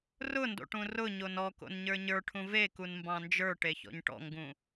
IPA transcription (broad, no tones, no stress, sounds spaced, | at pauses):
r ʊ n d o̰ ʈ ũ r ʊ ɲ o n ɔ k o̰ n ɲ ə˞ ɲ ə˞ ʈʰ ũ v e k u n m b ɑ̃ n d͡ʒ ə˞ ʈ e ç ɔ̰ ɲ ʈ ɔ̰ ŋ ɡ ũ